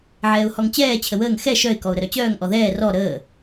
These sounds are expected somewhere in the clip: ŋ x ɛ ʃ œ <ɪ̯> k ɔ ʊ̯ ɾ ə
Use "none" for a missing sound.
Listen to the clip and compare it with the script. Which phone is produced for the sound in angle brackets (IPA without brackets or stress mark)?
ɪ̯